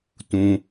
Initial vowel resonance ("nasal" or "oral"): nasal